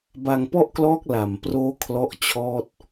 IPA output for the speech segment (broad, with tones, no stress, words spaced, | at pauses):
ba˧ŋpɔ˥˩ʔklɔː˦˥k̚ la˨˩mproː˦˥ kʰlɔ˥˩ʔt͡ɕʰɔː˥˩t̚